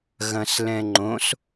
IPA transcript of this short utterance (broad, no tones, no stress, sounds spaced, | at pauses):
ɣ ɐ̃ s l ɛ̃ ŋ͡ǃ õ s